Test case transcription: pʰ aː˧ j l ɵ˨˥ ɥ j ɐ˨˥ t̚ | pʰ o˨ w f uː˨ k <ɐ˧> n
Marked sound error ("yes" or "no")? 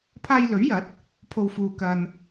no